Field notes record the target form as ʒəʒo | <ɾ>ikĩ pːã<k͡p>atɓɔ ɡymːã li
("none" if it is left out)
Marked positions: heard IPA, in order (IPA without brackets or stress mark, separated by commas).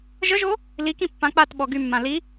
l, k͡p